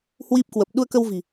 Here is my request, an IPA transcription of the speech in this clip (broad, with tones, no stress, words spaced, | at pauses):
hwi˦˥p̚kwə˨˩p̚ ɗu˧ə̯kə˧wvi̤˨˩